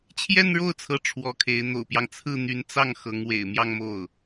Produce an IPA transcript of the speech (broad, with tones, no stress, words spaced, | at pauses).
t͡ɕʰjɛ˥˧nɻo˥˩ʊ̯t͡sʰɤ˧˥ ʈ͡ʂʰwɔ˧˥kʰe˧˥ɪ̯ n̪o̰˨˩ʊ̯pjɑ˦ŋ t͡sʰɹ̩˥˩n̪y˧˥nt͡sɑ˥˩ŋ xɤ˧˥ŋ wḛ˨˩ɪ̯mjɑ˥˧ŋmo˥˩ʊ̯